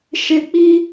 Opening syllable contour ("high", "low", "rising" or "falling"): low